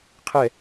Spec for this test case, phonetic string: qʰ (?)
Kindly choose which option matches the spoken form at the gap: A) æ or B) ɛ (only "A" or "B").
B